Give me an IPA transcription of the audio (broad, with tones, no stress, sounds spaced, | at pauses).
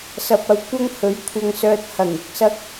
s ɐ˨ p̚ ɐ˨˧ w kʷ ɐ˥ ŋ h ɵ˨˥ ɥ kʷʰ ɐ˧ ŋ s œː˧ t̚ h ɐ˨˩ ŋ ɪ˧ k̚ s ɐ˥ k̚